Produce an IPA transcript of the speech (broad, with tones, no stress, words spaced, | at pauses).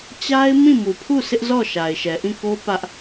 t͡ɕa˦ɪ̯ mĩ˦˨mu˨pʰu˦˨ sʰɪ˦ʔzɔ˦˨ ʃa˨ɪ̯ʃɛ˨ʔĩ˦˨ko˦ pä˦ʔ